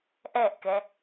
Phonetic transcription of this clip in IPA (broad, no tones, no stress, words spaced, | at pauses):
ʔɛʔkɛ